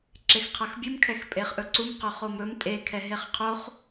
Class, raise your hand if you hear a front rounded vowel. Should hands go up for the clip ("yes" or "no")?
no